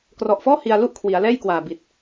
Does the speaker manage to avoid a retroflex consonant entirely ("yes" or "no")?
yes